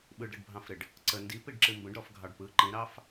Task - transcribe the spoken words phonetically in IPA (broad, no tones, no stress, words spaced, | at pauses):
ɓɯɖɾəɖbʱɑ̃fɾɪɖ | ǀə ndipiɖǁɨ mbə̃ɖɾɔfɡʱɑɖ pɯ ǃĩɾɑf